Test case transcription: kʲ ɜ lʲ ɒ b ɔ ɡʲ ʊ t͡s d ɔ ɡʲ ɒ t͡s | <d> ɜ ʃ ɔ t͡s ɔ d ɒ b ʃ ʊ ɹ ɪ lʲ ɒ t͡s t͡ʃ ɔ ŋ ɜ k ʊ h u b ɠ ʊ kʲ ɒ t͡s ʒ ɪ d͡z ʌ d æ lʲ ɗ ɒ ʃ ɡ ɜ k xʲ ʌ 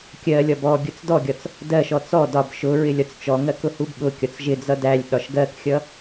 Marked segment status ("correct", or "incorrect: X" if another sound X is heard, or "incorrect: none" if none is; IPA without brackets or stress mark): correct